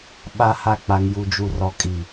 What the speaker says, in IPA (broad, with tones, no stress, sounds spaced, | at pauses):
ɓ a˨ h a˨ k͡p a˨ ŋ j u˨ d͡ʒ u˨ r ɔ˨ kʼ i˨